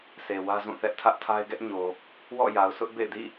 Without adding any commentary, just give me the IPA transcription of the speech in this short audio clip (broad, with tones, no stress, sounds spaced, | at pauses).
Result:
s e˨ w ä˦ z ũ˦˨ θ ɛ˦ ʔ tʰ ä˦ ʔ tʰ a˦ ɪ̯ ɡ ɛ˦ ʔ ɲ o˨ | w ɔ̰˦˨ j a˨ ʊ̯ s ʊ˦ ʔ b ḛ˦˨ ɪ̯ d ḭ˦˨